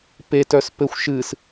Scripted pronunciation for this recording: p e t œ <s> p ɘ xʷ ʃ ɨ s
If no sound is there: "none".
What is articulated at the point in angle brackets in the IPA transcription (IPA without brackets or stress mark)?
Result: s